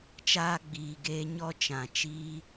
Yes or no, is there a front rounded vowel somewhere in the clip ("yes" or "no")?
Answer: no